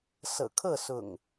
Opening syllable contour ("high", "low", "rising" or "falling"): low